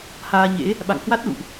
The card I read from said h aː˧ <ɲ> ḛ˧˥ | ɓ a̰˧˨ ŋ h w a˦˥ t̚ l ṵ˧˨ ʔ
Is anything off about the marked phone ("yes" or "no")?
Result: no